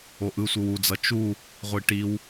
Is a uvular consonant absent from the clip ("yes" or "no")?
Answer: no